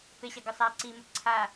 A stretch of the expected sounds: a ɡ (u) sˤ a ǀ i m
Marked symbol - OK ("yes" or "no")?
no